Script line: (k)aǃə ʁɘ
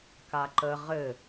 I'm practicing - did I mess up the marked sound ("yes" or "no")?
no